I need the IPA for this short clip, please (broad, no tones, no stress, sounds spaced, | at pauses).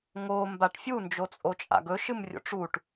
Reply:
ŋ o m b a ʈ fʲ u n d͡ʒ o t͡sʼ o t͡ʃʼ a̰ ɡ ɵ ʃ ɨ m rʲ o̰ ʈ͡ʂ u ʈ